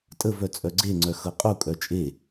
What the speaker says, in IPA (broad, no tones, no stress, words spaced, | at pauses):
tʼəvœ t͡sʼœɡ͡ǀeŋ͡ǀœ xɤqʼukʼœ t͡ʃʼe